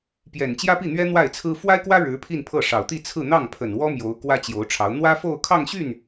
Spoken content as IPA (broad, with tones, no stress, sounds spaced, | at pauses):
p j ɛ˨˩ n t͡ɕ j ä˥ p i˥˩ n̪ ɥ ɛ˥ n̪ w a˥˩ ɪ̯ t͡sʰ ɹ̩˥ f w a˥ ɪ̯ k w ä˥ ɻ ɻ̩˧˥ pʰ i˥˧ n pʰ ɤ˥˩ ʂ ɑ˨˩ ʊ̯ t̪ i˥˧ t͡sʰ ɹ̩˥˧ n̪ ɑ˥˩ ŋ pʰ ə˨˩ n w ɔ˥ m j o˧˥ ʊ̯ k w ä˥ t͡ɕ j o˧˥ ʊ̯ ʈ͡ʂʰ ɑ˧˥ ʊ̯ n̪ w ä˥ f o˥˧ ʊ̯ kʰ ɑ˥˧ ŋ ɕ y˥˩ n